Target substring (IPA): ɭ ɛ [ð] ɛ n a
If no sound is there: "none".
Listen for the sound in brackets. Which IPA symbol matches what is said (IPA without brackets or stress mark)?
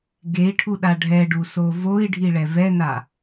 v